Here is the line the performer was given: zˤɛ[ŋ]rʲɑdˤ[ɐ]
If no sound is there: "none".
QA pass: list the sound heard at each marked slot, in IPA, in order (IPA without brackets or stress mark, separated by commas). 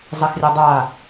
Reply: x, a